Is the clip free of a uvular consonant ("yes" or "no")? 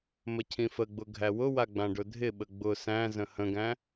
yes